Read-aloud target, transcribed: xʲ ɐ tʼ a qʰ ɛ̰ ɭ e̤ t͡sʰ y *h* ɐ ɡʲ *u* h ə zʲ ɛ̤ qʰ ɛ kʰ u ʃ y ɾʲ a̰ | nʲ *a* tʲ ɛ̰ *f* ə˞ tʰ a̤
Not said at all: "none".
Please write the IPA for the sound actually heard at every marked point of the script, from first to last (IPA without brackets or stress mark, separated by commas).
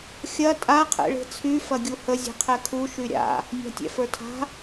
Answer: f, u, a̤, f